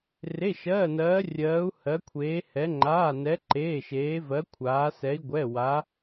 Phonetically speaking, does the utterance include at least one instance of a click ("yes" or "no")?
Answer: yes